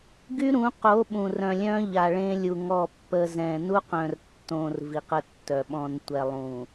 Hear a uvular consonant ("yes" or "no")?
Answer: yes